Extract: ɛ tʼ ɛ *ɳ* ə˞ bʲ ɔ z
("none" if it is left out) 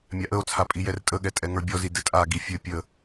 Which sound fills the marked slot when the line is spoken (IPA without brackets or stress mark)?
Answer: ŋ